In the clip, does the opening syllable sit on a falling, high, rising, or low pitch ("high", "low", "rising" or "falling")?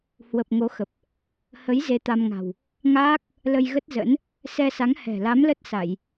low